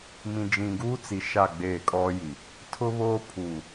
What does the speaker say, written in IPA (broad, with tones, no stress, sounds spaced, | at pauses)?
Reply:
m ĩ˨ d͡ʒ ĩ˨ ɡ uː˦ t͡s i˨ ʃ a˦˨ ɡ͡b eː˦˨ kʼ ɔ˦ j i˨ | tʰ ʊ˦ β oː˦ pʰ uː˨